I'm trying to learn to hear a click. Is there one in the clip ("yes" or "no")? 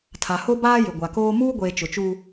no